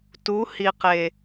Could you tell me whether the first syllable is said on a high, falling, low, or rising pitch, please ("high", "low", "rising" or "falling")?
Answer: rising